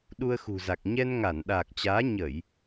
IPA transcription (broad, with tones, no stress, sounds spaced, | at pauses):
ɗ u˧ ə̯ x ṳ˨˩ z a˨˩ k̚ ɲ ɛ˧ n ŋ a˧˩ n ɗ aː˨˩ k̚ t͡ɕ aː˨˦ ɲ ə˧˩˨ j